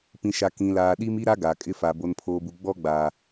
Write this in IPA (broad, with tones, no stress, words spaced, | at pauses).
pĩ˨ʃa˨ kĩ˨laː˨ɗi˦m i˦ɾa˦ ɡa˨kʼɪ˦fa˨ bo˨npʰoː˨bu˨ ɡ͡bɔ˦ɡ͡baː˨